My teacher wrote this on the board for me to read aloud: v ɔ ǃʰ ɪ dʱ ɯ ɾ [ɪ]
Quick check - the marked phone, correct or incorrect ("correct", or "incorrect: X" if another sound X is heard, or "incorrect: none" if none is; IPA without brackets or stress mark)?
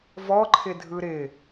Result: correct